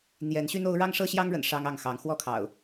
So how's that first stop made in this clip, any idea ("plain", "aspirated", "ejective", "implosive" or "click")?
aspirated